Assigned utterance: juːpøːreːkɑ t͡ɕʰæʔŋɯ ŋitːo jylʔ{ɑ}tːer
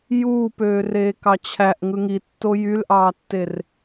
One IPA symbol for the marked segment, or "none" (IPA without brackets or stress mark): ɑː